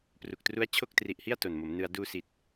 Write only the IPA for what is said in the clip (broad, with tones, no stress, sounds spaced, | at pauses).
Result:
p r u˨˩ k̚ t r u˦˥ a̯ t͡ɕʰ o˥˩ k̚ t r i˨˩ ʔ h i˥˩ a̯ t o˨˩ n m o˩˦ m n ɯ˧ a̯ d uː˧ s i˨˩ t̚